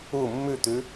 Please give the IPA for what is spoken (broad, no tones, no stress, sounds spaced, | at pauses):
u mː ʉ t̪ ʉ